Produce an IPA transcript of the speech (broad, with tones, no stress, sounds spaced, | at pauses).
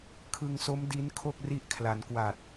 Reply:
kʰ ɯ˧ ŋ s o˦˥ m d i˦˥ n kʰ o˥˩ k̚ r i˦˥ ʔ kʰ l a˩˦ n k w a˨˩ t̚